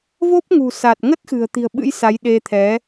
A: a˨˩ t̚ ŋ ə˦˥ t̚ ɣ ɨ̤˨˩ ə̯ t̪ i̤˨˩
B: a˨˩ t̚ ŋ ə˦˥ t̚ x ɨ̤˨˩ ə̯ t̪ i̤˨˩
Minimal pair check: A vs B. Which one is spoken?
B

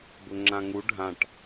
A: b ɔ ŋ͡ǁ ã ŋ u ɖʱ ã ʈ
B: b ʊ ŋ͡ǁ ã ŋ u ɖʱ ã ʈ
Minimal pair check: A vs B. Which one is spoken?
B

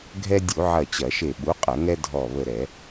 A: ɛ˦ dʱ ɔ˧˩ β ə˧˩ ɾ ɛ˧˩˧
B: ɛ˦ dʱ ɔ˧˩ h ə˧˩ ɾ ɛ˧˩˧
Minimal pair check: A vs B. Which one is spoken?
A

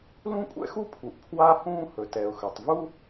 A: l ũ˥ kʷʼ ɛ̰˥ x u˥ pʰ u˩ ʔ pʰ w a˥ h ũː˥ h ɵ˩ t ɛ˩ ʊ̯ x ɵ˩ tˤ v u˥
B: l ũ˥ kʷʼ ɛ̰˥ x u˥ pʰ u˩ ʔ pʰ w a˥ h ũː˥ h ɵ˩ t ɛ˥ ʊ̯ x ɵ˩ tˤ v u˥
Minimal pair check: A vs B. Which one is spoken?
A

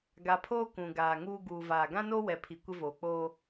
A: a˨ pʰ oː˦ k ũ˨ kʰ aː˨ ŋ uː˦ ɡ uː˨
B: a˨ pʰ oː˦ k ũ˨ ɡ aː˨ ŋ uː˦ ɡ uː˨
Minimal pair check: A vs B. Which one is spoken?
B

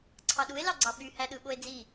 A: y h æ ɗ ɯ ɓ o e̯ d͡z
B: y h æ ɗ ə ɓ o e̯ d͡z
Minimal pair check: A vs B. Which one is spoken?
A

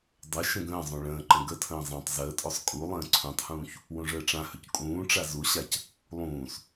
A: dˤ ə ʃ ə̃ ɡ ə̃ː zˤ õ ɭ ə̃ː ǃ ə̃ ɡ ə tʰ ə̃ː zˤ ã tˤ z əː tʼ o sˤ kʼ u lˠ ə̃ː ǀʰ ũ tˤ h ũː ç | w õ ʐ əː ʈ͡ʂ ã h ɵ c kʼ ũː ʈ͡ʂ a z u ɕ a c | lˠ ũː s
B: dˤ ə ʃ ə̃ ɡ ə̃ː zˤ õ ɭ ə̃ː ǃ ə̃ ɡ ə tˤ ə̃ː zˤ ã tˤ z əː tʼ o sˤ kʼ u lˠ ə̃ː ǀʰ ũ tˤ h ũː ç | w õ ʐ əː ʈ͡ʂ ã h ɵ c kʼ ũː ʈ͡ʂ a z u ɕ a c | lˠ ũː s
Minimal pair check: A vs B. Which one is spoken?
A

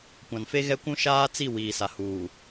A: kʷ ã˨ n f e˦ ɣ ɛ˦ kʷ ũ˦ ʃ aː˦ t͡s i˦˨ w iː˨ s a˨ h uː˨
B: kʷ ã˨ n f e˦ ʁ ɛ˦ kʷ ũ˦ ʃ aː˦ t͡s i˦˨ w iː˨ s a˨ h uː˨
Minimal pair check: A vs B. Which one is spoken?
A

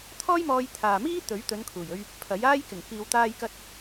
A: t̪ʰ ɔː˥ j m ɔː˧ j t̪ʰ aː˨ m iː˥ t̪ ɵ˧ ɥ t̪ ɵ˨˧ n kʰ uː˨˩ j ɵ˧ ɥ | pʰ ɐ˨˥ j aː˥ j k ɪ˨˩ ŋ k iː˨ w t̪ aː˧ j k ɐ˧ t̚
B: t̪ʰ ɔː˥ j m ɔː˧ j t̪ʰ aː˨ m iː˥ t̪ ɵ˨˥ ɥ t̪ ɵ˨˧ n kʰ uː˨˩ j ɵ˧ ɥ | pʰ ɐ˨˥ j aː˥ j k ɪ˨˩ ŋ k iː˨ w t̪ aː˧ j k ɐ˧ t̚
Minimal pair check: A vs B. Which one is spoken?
B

